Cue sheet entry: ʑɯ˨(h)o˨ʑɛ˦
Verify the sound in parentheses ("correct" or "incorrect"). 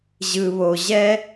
incorrect